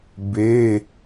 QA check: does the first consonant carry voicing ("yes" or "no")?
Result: yes